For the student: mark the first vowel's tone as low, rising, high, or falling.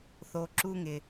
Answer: low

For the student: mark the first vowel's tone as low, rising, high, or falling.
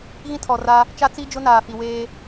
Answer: high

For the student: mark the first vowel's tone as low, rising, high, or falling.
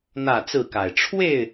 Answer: falling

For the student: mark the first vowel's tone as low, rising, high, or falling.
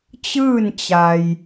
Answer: falling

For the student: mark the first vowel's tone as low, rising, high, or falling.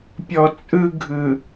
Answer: low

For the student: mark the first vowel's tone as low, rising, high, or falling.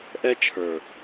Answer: high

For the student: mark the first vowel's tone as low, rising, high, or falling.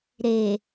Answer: low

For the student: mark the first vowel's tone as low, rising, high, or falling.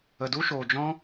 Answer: low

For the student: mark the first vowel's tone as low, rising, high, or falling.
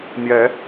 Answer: rising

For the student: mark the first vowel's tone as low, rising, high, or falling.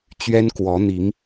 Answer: high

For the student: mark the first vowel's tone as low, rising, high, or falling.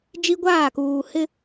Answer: high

